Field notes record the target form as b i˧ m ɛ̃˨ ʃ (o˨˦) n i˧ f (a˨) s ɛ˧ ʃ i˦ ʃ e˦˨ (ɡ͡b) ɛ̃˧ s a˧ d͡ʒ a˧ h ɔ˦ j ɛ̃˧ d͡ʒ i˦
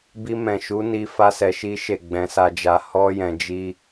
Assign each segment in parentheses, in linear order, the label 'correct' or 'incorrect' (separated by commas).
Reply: incorrect, incorrect, correct